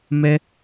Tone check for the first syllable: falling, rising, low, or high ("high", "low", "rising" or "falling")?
high